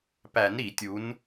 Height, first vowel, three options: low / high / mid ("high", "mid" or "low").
low